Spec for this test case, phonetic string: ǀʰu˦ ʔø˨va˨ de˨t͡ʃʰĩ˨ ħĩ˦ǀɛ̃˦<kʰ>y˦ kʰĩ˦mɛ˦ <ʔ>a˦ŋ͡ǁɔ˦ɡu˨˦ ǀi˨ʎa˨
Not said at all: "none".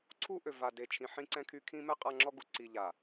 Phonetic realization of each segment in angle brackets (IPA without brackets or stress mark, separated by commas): kʰ, qʼ